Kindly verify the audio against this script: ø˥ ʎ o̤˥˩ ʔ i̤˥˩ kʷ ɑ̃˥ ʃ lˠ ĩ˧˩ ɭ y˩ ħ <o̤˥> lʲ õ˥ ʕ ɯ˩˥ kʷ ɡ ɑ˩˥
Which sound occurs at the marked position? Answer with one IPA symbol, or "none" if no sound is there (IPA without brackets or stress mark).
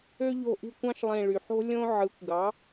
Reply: o̤˥